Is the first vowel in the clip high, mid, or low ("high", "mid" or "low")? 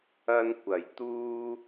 low